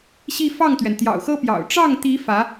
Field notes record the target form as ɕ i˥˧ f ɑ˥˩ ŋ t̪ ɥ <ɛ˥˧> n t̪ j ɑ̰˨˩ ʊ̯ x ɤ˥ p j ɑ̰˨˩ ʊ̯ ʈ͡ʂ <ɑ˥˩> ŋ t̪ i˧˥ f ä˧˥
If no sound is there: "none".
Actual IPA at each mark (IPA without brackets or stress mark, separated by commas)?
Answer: ɛ˩, ɑ˥˩